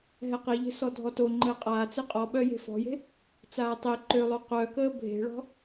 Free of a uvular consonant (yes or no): no